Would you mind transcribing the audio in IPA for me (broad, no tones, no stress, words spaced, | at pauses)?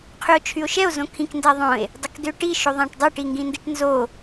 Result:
qʰyo̯t͡ʃʰyo̯ʃɛo̯ zõkʰĩk ndæðˤõe̯ | dˤokdøʈi ʃoðˤæ̃ʈdˤøʈ iŋɡĩndiʈnzo